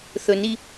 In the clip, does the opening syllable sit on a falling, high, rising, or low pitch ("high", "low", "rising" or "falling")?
low